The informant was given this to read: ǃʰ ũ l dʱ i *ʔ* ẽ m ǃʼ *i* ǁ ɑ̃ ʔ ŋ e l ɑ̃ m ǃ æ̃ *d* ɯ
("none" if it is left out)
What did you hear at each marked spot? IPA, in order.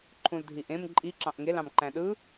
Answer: ʔ, i, ɗ

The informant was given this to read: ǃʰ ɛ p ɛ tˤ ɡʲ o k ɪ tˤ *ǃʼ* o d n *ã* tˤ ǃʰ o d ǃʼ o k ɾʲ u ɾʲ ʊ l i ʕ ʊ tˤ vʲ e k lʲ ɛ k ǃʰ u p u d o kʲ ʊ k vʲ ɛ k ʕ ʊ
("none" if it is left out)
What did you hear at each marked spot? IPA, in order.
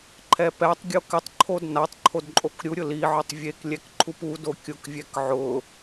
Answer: ǃʰ, a

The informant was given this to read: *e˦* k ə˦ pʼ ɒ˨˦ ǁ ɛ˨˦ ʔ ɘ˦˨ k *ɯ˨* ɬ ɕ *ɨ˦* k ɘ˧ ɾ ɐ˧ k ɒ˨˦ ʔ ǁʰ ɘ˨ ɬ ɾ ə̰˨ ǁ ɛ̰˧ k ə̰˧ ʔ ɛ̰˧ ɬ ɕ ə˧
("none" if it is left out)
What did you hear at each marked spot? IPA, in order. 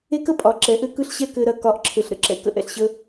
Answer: e˦, ɯ˦, ɛ˦

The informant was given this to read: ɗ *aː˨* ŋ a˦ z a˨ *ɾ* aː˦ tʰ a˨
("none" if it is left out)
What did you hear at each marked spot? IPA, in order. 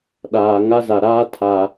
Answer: aː˨, ɾ

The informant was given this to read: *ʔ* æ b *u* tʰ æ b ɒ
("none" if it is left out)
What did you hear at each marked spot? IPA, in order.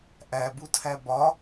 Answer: ʔ, u

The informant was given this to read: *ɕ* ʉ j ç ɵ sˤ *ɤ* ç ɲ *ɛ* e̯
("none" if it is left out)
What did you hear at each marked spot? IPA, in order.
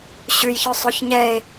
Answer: ɕ, o, ɛ

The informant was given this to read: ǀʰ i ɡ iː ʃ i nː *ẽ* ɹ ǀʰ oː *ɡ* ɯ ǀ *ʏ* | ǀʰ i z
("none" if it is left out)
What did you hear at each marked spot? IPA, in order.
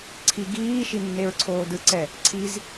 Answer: e, d, ɛ

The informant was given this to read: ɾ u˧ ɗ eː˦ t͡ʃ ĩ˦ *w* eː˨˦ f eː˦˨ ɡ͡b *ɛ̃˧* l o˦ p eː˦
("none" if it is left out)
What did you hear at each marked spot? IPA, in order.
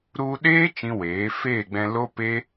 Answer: w, ɛ̃˧

